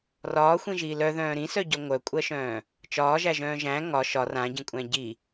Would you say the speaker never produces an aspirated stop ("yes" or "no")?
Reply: yes